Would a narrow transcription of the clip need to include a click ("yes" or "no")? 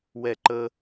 yes